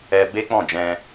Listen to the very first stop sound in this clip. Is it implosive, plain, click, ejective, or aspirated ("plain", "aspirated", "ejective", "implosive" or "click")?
plain